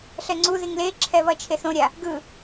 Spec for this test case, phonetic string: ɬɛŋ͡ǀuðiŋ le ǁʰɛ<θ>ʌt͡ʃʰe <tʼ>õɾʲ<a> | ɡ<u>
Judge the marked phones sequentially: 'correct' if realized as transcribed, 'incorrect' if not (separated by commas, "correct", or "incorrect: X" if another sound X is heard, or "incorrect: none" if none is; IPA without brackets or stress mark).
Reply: incorrect: β, incorrect: θ, correct, incorrect: ɯ